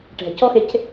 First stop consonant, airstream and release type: plain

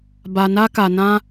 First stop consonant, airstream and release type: plain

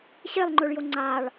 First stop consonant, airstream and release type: click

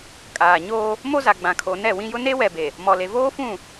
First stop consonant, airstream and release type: ejective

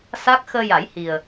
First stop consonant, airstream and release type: plain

